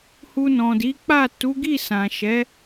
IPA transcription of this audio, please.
h u˧ n ɔ̃˨ d i˨˦ k͡p a˦˨ t u˨˦ ɡ i˦˨ s ã˨ ʃ ɛ˨˦

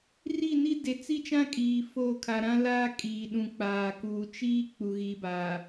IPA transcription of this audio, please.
r i˦˨ n i˦ d e˨ t͡s i˦ t͡ʃ ã˦ kʼ iː˨ f oː˦˨ kʰ a˨ ɾ ã˦ l aː˦ kʼ iː˨ ɗ ũ˨ k͡p aː˨ k uː˨ t͡ʃ iː˦ k͡p u˨ ɣ i˨˦ b a˨

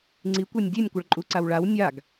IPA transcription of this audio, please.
ŋ͡ǀ i kʷ ɛ nʲ dʲ e nʲ kʷ ʌ ɭ ǃʼ u ǀ a w ɭ a w nʲ a ɡ

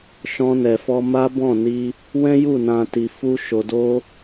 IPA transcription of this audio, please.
ʃ ɔ̃˧ n ɛ˨ f ɔ˧ m a˦ b ɔ̃˦˨ n i˧ | w ɛ̃˦ j u˦˨ n ã˨ t i˨ f u˧ ʃ o˨ d o˧

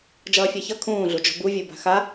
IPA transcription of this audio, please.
d͡ʒ ʌː fʲ a ç ʌ kʰ ũː ɮ u d͡ʒ o̤ b u vʲ o b a̤ x a

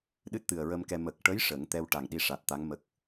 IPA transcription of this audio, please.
ɗ ɨ˦˥ t̚ t̪ ɨ˨˩ ə̯ ɹ ə˧ m k ɛ˧ m ə˨˩ k̚ ʈ ə˧˥ j ʂ ə˨˩˦ ŋ t̪ ɛ˧ w ʈ a˨˩ ŋ ɗ i˧ ʂ a˨˩ t̚ t̪ a˧˥ ŋ m ə˦˥ k̚

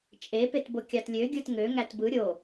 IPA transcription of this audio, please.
t͡ʃʼ e p e t b o kʲ ɑ t lʲ ø ɡʲ ɯ t ŋ ø ŋ æ t b ɯ ɾʲ o

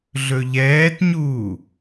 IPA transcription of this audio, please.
ɮ ɵ ʎ ɛː t ɲ uː

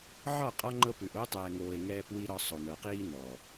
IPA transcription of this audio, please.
ʕ ɒ˦˨ qʼ ɒ˦ ŋ͡ǃ ɤ˦ p ʉ˨ ʔ o˦ tˤ ɛː˨ ŋ oː˨ e̯ ŋ ɛː˦ p w i˦ ɾ ɒ˦ sˤ o˨ n ɤ˨ q iː˦ n ɔ˨

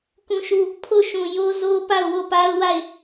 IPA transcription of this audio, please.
k ũ˦˨ ʃ u˦˨ | pʰ o˦˨ ʃ ũ˨ j o˦ z o˦ p a˦˨ ʊ̯ w o˦˨ p a˦ ʊ̯ w a˦˨ ɪ̯

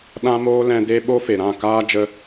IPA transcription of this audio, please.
ɗ ã˦ m oː˦ l ɛ̃˧ d e˦ ɓ o˦ f e˨ ɾ ã˦˨ k aː˦ d͡ʒ ə˧

